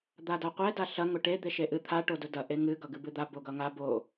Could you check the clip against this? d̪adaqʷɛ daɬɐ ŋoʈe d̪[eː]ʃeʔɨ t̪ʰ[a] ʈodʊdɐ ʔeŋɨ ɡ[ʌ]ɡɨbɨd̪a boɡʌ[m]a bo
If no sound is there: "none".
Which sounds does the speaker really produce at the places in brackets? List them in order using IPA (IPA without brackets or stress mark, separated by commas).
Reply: e, a, ʌ, ŋ